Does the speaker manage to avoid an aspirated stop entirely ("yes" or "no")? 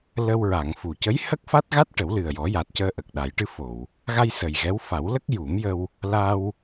yes